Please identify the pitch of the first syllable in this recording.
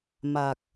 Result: low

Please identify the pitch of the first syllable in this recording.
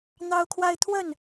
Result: high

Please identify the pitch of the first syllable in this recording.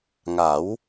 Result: rising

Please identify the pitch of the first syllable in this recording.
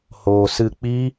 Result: low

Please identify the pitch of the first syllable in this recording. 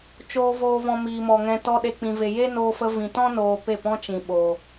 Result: low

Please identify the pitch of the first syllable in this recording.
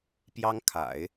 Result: high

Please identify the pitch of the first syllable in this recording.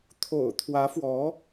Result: low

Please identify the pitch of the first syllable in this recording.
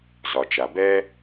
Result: low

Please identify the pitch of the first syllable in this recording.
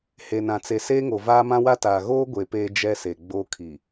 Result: low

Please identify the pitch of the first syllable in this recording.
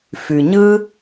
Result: low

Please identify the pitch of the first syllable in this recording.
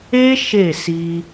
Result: high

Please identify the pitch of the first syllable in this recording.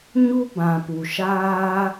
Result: high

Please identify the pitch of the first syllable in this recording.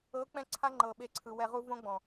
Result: rising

